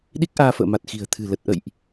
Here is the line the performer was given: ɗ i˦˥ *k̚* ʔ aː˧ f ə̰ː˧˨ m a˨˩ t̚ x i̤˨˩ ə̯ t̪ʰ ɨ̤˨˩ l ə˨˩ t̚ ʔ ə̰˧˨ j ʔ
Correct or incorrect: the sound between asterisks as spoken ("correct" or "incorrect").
correct